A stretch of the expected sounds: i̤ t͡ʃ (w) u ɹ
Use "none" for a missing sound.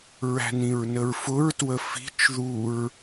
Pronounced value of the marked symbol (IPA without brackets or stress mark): ð